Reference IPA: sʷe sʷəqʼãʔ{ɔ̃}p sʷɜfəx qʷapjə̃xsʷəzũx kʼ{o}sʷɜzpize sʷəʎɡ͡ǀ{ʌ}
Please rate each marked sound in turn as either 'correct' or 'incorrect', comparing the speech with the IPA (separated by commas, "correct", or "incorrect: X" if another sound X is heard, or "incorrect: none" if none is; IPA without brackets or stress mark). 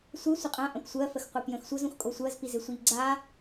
incorrect: ə̃, correct, incorrect: a